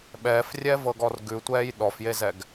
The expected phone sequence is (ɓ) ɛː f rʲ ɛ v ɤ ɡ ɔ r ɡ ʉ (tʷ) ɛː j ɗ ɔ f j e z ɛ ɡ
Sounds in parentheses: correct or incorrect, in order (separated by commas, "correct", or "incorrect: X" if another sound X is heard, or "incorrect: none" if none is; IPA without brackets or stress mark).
correct, correct